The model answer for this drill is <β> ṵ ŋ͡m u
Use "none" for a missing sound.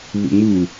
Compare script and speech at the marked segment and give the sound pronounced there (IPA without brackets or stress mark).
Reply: β